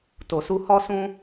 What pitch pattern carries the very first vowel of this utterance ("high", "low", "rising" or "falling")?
low